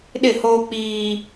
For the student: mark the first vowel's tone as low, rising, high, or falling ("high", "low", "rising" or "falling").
falling